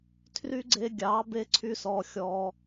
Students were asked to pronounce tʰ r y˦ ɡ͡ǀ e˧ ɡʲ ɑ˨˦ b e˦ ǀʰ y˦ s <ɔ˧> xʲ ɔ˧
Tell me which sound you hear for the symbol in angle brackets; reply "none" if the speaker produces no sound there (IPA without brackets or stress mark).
ɔ˧